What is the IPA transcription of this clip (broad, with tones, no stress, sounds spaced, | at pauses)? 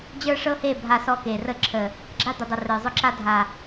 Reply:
d͡ʑ ə˞˦ ʂ ɤ˦ h e˦˨ bʱ a˧ s ɔ˧ k e˨ r ə˦˨ ǁʰ ə˨ | ɡ͡ǁ a˦ d̪ ʊ˨ dˤ ə˨ r ə˞˨ zˤ ʊ˦ ǁ a˦ dʱ a˨